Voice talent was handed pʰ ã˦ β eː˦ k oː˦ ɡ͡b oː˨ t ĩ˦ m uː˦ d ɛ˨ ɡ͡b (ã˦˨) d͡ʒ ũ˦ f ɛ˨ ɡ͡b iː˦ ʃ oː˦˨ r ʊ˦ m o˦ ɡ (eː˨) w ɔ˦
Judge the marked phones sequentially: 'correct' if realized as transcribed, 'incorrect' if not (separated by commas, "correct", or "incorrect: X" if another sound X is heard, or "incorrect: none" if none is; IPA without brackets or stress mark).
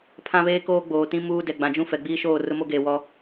incorrect: ã˨, correct